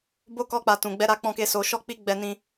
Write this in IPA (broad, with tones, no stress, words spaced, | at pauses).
bo˦ kɔ˦k͡pa˧ tũ˨ ɡ͡bɛ˧ɾa˧k͡pɔ̃˧ke˧ so˧ ʃɔ˦k͡pi˦ ɡ͡bɛ˦nĩ˦